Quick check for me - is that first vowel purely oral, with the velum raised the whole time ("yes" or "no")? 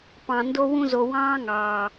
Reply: no